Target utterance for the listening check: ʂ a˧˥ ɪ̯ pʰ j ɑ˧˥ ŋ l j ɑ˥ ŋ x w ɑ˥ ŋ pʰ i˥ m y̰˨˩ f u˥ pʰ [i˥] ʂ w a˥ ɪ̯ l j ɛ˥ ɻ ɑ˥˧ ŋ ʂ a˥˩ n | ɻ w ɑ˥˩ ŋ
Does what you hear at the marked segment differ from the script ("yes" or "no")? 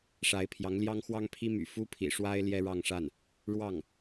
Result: yes